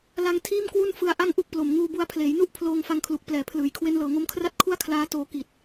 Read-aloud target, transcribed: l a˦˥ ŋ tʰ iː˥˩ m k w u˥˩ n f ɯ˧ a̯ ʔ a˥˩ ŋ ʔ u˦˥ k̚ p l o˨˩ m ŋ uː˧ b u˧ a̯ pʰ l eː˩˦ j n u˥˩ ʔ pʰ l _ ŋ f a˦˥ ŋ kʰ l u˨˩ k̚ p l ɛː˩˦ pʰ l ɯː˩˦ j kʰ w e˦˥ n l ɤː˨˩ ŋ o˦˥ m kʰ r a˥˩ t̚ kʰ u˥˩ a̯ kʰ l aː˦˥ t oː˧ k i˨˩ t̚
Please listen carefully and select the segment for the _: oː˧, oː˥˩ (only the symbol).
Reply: oː˧